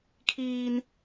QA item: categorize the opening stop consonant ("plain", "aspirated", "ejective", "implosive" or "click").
aspirated